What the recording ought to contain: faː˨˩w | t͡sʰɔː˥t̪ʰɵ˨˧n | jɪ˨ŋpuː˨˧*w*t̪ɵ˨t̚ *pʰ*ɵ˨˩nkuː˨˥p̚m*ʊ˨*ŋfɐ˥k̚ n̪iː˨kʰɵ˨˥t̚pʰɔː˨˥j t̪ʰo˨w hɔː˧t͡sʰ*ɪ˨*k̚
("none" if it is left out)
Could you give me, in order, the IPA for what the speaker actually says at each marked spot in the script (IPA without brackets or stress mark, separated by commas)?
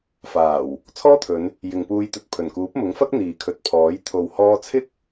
j, pʰ, ʊ˨˥, ɪ˥